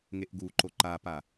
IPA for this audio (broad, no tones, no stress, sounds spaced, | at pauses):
ŋ e ʔ ɡ u ǃ o ǃ a p a